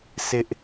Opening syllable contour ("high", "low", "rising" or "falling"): high